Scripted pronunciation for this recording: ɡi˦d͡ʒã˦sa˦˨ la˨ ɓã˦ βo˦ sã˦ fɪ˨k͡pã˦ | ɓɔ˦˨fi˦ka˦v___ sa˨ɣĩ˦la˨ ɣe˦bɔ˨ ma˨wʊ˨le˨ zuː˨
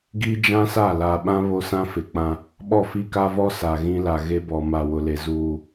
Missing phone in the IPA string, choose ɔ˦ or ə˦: ɔ˦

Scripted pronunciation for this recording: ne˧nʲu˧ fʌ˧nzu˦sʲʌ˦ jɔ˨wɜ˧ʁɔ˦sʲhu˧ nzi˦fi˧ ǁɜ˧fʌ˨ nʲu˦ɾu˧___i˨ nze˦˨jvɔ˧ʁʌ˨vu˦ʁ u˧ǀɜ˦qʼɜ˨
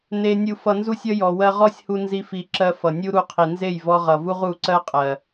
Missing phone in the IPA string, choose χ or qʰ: qʰ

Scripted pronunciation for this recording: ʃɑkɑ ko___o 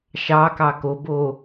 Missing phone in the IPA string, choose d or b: b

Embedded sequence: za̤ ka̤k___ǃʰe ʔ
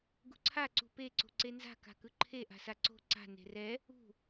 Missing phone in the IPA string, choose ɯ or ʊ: ɯ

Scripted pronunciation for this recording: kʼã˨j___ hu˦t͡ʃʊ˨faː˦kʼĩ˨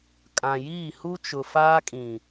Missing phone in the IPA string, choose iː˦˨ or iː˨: iː˦˨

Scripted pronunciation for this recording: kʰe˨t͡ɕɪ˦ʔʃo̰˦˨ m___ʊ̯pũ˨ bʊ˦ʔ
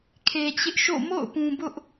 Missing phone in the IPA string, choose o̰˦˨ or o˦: o̰˦˨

